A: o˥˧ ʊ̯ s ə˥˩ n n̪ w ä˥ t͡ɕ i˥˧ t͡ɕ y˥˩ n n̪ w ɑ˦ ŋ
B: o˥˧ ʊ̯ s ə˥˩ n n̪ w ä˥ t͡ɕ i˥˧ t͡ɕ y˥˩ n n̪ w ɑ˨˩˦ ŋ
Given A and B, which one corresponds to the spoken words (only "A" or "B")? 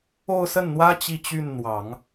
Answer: B